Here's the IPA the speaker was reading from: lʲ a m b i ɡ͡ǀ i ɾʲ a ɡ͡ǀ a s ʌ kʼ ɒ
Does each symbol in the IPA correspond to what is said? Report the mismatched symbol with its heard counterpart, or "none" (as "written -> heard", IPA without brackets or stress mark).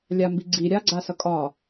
none